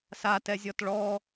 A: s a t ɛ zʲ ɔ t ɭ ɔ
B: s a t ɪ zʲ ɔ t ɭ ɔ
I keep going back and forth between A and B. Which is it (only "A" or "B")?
A